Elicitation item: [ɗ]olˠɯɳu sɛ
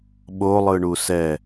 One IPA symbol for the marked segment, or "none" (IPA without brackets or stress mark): ɓ